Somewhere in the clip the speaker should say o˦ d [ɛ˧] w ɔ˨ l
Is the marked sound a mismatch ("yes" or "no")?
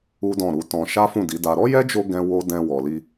yes